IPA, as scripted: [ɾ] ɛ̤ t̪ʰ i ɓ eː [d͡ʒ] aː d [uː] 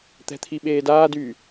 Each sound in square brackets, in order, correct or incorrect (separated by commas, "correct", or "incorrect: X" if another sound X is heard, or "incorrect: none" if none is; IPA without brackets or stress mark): incorrect: t̪, incorrect: d, incorrect: yː